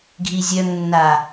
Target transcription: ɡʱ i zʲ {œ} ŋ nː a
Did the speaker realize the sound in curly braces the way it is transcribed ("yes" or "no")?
yes